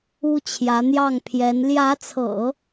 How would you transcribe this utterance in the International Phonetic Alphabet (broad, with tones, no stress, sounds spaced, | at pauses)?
u˥ t͡ɕʰ j ä˧˥ n̪ j ɑ˥˩ ŋ pʰ j ɛ˧˥ n l j ä˧˥ t͡sʰ ɤ̰˨˩˦